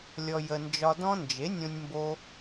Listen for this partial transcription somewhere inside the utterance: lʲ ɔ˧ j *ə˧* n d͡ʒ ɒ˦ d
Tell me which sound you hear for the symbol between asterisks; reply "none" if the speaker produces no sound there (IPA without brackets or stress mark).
ə˧